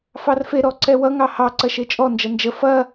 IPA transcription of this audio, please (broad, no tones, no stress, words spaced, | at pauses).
fɑrfe ɾɔǀɛwʌ ŋɑhɑ ǀɐʃet͡ʃʼɔ nd͡ʒʌnd͡ʒə fɐ